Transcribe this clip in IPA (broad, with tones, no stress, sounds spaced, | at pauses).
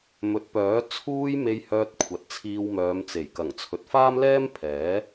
m ɵ˨˥ t̚ p œː˨˥ t͡sʰ uː˧ j m e˧ j h œː˧ t̚ kʷʰ ɐ˨ t̚ t͡sʰ iː˧ w m œː˨˧ m t͡s e˨˩ j k ɐ˨˩ ŋ t͡sʰ ɵ˨ t̚ f aː˥ m l ɛː˥ m pʰ ɛː˨˥